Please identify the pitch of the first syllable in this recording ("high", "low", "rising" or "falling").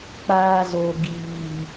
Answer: high